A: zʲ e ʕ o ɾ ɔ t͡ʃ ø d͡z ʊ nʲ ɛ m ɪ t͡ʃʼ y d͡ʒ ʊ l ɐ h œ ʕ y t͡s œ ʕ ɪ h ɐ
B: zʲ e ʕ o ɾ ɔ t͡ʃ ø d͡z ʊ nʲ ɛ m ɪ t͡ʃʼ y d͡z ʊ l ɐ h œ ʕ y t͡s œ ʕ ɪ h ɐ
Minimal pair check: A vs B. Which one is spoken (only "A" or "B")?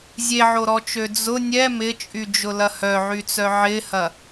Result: A